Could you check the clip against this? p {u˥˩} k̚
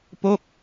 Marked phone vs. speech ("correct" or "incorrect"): incorrect